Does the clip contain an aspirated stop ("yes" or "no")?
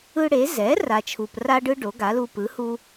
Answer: yes